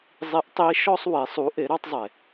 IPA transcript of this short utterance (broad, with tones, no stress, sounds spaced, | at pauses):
zˤ i˧˥ ʔ tˤ i˧˥ ʃ ɔ˧ sˤ w e˩˧ sˤ u˩˧ ʔ e˩˧ ɾ ɑ˧ tˤ zˤ e˩